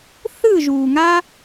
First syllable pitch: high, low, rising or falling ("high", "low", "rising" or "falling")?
falling